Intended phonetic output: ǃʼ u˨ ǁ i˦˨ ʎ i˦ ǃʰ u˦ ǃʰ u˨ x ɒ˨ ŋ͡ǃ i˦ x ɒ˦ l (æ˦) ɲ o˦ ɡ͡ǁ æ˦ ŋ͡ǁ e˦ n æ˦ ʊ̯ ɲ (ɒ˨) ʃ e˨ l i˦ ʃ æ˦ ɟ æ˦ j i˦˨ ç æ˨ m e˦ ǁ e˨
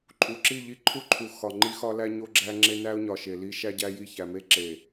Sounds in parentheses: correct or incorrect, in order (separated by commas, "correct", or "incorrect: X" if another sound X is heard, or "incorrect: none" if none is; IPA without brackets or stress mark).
correct, correct